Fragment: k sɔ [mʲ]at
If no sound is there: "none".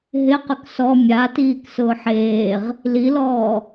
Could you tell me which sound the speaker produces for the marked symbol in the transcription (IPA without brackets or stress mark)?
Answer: mʲ